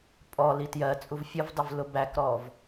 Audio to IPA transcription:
pʼ ɔ l i t j ɜ t͡sʼ u v fʲ ə v dˤ ɪ v l ʊ b æ k ɾ ɔ v

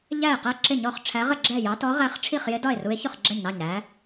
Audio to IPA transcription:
ʎ æ˥˨ e̯ q ɛ˥˨ ǁ ɪ˥˨ ɲ ɔ˥˨ χ ʈ͡ʂʰ æ˧˥ ʁ ə˥˨ ɡ͡ǁ ɛ˥˨ j ɑ˧˥ t ɔ˧˥ ʁ æ˧˥ χ ʈ͡ʂʰ i˥˨ χ j ɪ˧˥ d ɒ˥˨ e̯ r u˧˥ e̯ ç ʊ˥˨ χ ɡ͡ǁ ɛ˥˨ ɲ n ɑ˥˨ ɲ ɾ æ˧˥

